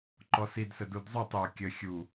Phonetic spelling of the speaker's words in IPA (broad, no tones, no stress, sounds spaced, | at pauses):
ǃ ɔ s i d s ə d u d zˤ u tˤ j o kʲ ə xʲ u